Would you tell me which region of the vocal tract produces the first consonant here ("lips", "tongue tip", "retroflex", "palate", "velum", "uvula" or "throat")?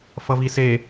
lips